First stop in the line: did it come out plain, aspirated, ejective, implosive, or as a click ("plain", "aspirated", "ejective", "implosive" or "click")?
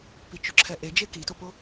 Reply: plain